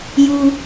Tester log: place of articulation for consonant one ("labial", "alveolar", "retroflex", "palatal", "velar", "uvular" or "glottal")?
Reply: palatal